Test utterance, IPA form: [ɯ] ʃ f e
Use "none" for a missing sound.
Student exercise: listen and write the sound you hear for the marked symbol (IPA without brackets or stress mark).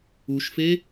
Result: u